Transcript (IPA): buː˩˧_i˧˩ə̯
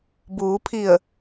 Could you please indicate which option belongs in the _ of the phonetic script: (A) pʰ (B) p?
A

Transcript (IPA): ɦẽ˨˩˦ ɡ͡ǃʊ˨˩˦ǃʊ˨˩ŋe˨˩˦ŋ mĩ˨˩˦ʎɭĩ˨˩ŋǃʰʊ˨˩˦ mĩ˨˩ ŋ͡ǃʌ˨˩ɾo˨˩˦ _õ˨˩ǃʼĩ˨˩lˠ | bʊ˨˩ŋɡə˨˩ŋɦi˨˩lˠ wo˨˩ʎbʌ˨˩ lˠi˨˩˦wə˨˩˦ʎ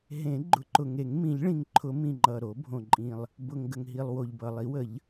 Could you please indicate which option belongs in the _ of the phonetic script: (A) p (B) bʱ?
B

